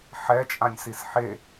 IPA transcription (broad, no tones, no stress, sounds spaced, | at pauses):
ħ ɛ t͡ʃʼ ã nʲ s i s ħ e